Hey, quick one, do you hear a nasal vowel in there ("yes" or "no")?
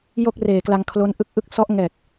no